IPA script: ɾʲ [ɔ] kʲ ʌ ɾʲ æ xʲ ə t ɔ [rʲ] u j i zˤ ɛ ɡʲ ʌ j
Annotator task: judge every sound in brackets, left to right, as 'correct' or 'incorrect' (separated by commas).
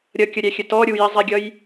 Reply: incorrect, incorrect